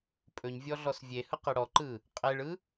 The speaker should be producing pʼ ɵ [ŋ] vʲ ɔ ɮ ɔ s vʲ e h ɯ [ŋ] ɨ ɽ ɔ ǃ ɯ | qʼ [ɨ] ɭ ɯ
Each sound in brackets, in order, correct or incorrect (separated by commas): incorrect, incorrect, incorrect